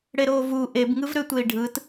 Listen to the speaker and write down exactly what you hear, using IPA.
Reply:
ɽ e ɾ oː v u ʔ e b ŋ ɯ v ɾ ø tʷ e i̯ ɖʱ ɯ t

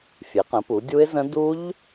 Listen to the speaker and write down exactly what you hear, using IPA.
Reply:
fʲ e˩˧ q ə̃˩˧ p u˩˧ dʲ u˦˥ ɪ̯ z ə̃˦˥ d u˦˥ ʎ

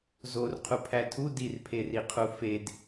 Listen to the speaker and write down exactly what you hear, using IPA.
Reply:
z o r qʰ u pʰ æ tʰ u d i r pʰ e r i qʰ u f e d

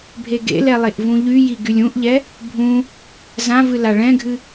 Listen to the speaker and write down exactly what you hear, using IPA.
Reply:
bʱ e ɡ ḛ l ɛ lˠ e ʔ v ũ ʎ y j i ɡ y lʲ ũ ʔ ʎ ɛ | bʱ ũ | z ã v ɨ l a ɭ ɛ̃ ɡʱ ɨ

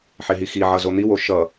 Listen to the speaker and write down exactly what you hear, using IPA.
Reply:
ħ e ɦ i x i ʕ ʌ z o n̪ i w o ʃ ʌ

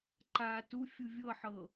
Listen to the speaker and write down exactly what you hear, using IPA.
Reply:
ǃ a t u fʲ u vʲ ɤ ħ ɤ

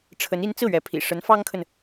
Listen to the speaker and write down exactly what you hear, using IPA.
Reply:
ʈ͡ʂʰ ə˧˥ n i˧˥ n t͡s ɹ̩˥˩ ɥ ɛ˧˥ pʰ ḭ˨˩ ʂ ə˧˥ n f ɑ˥ ŋ kʰ ə˨ n

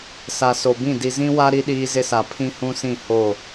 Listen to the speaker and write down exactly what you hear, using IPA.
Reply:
s a˨ s o˨ b ĩ˦˨ d i˨ z ĩ˦ w a˦ ɾ i˦ ɗ iː˦ z ɪ˦ s a˨ pʰ ĩ˦ h ũ˦ s ĩ˦˨ h o˦˨

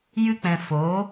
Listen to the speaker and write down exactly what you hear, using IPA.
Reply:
j ɨ˦ k͡p ɛ̃˧ f o˨˦

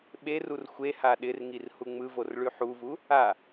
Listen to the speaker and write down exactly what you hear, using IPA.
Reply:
ɓ e r u r xʷ e h a ɗ ɪ r ŋ i r h u ŋ͡m ɯ v o r ɭ ʉ ħ u v u | a

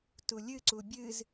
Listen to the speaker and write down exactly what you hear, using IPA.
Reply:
t u lʲ ɨ ǀ u bʲ ɨ z

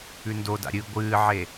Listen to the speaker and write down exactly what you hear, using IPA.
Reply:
ʉ n d o d a̰ ɾʲ ɨ ɡʷ ɨː ʕ e

